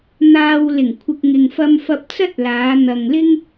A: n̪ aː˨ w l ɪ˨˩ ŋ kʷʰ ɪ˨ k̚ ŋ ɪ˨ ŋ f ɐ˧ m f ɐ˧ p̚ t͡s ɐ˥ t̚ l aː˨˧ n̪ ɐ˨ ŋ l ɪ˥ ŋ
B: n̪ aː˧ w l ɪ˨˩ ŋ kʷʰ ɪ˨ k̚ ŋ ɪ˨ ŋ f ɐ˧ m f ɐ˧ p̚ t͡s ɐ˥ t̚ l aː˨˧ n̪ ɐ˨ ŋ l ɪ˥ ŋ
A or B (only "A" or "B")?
B